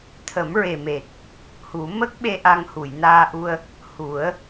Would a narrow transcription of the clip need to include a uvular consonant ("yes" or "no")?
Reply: no